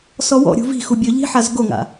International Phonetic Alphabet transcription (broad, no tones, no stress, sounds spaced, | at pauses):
s ɔ w ɔ̰ ɾʲ ṳ v i̤ x u bʲ ɵ ʎ i̤ ħ a z ɡ o ŋ a̰